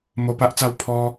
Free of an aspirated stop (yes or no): no